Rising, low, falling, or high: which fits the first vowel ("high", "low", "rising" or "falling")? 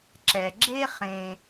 low